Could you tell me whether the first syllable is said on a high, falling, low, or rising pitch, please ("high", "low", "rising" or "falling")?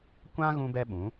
high